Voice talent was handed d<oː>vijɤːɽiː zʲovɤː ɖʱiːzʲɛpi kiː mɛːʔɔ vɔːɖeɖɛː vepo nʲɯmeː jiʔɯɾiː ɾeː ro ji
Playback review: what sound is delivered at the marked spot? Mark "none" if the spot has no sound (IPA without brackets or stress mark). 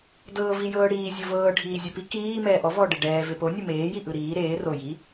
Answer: ɤː